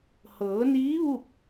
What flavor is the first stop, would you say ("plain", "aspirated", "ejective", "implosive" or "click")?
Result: plain